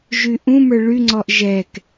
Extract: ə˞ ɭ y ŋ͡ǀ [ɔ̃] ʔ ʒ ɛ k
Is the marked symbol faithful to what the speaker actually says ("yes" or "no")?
no